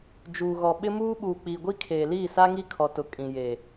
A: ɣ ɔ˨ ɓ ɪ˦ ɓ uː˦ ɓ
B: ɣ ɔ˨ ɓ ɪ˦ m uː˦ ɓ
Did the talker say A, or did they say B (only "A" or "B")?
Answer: B